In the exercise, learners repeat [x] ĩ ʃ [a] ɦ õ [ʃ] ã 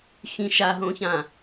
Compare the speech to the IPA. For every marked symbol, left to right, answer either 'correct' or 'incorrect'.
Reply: correct, correct, incorrect

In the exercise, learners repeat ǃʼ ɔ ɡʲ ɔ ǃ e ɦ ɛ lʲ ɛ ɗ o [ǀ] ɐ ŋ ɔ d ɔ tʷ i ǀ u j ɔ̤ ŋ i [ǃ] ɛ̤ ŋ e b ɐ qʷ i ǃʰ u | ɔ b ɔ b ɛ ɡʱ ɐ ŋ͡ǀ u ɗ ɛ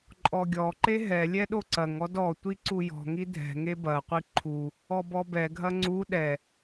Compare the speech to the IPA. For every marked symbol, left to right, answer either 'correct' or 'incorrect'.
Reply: correct, incorrect

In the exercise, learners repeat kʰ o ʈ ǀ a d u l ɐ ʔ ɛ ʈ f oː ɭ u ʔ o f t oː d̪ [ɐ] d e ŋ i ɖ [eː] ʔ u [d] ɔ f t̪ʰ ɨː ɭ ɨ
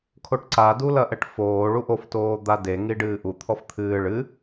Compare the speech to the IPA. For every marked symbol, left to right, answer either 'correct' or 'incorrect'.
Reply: incorrect, incorrect, incorrect

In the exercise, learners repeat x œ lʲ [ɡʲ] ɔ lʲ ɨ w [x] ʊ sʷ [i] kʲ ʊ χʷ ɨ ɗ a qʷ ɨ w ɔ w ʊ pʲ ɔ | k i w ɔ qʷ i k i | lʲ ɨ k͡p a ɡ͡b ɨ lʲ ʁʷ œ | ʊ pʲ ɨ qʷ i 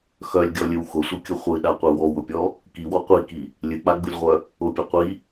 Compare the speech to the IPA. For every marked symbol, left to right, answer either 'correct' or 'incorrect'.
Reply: correct, correct, incorrect

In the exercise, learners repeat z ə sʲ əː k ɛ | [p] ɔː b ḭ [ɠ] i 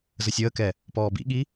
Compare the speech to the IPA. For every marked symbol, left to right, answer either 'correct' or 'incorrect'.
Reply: correct, correct

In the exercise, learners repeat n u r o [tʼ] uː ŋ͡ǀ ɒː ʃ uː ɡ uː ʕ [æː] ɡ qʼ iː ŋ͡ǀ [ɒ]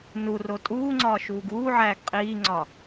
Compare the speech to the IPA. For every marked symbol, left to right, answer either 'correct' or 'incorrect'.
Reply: correct, correct, correct

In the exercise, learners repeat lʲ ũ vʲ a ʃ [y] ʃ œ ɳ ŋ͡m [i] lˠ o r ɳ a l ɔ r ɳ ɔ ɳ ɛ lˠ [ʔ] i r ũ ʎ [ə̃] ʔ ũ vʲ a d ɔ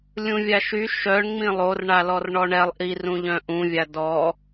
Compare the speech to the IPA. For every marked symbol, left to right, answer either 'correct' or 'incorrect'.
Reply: correct, incorrect, correct, incorrect

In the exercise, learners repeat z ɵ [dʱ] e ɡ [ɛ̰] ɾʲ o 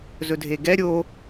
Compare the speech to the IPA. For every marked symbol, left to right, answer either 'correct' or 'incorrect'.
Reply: correct, incorrect

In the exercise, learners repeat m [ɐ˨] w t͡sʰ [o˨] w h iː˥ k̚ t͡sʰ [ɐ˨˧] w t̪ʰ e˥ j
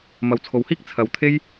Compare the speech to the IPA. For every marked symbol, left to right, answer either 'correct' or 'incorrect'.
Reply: correct, correct, correct

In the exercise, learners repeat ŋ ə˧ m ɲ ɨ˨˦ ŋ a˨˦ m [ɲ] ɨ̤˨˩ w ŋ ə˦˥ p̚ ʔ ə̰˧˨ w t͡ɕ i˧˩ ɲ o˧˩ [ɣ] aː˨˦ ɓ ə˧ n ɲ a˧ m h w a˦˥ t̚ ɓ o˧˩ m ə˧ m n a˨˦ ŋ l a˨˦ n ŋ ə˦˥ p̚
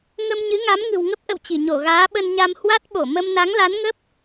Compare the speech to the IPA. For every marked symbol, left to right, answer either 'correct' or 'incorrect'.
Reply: incorrect, correct

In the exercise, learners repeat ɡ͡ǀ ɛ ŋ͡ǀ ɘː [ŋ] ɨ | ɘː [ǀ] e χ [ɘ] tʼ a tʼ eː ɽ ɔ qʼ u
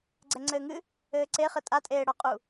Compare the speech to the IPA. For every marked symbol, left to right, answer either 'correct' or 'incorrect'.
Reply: correct, correct, correct

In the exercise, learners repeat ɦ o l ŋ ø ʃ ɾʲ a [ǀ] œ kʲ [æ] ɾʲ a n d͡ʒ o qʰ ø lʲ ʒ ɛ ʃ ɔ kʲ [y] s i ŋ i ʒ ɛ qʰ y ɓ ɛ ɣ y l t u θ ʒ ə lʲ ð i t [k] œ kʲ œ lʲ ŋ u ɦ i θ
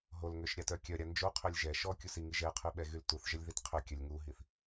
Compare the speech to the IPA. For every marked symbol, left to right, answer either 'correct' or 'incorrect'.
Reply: incorrect, incorrect, incorrect, incorrect

